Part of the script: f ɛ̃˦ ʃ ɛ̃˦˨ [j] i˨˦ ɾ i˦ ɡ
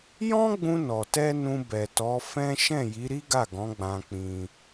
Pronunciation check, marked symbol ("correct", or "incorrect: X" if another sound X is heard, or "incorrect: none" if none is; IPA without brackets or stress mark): correct